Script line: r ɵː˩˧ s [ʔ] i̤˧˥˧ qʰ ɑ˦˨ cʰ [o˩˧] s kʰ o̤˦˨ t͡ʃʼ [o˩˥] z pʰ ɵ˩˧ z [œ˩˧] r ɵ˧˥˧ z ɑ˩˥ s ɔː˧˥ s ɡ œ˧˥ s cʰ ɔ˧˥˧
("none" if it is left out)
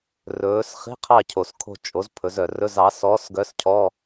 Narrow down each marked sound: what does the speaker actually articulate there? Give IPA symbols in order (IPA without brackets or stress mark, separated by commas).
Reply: χ, o˩, o˩˥, œ˩